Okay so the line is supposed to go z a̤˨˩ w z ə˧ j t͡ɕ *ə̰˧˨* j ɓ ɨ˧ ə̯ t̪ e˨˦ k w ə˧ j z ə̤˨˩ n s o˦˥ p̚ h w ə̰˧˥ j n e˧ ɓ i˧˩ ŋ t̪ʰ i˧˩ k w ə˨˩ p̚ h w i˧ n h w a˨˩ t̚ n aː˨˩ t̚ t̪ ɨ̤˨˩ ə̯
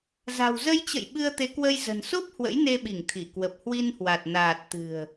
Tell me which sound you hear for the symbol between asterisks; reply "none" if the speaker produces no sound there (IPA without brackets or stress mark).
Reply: ə̰˧˨